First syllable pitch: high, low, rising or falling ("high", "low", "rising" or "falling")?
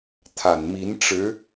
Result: low